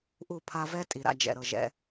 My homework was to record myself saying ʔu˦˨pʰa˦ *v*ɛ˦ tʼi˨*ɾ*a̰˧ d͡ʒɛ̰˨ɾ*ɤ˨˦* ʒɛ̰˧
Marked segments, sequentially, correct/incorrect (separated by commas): correct, correct, incorrect